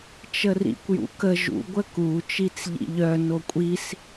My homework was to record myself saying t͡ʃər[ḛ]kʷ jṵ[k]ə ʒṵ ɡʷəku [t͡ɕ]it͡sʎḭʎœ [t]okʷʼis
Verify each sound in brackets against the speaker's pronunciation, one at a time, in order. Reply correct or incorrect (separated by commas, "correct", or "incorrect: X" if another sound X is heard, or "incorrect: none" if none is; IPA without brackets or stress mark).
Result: incorrect: ḭ, correct, incorrect: t͡ʃ, incorrect: n